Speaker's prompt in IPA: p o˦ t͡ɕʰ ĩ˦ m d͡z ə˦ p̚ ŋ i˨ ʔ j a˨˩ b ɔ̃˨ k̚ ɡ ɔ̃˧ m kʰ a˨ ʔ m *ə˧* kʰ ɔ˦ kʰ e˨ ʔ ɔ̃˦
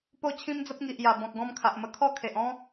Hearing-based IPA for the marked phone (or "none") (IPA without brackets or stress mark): ə˧